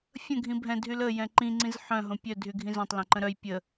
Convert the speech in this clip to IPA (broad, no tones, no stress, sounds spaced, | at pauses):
fʲ ə̃ ɡʱ ĩ bʱ ɛ̃ dʱ y l ə j ɛ̃ ǃ ĩ ŋ͡ǀ ĩ z ħ œ̃ ɦ õ pʲ œ dʱ y ɡʱ ĩ z œ̃ tˤ l ɛ̃ ǃ ə̃ ɾ œ j pʲ ə